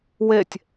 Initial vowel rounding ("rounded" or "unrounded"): unrounded